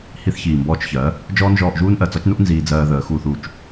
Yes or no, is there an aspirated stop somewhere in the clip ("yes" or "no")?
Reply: no